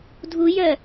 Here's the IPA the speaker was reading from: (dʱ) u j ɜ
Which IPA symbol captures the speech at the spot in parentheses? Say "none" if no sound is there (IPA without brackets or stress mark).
dʱ